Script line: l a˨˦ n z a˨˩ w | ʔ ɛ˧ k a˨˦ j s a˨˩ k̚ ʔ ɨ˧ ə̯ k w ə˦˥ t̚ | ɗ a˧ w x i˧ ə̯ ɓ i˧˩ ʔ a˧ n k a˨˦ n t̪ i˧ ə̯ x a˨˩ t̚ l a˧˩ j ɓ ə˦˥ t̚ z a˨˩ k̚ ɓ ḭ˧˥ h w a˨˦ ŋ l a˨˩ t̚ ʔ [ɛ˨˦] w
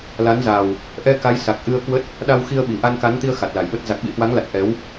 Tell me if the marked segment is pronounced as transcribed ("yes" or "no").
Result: yes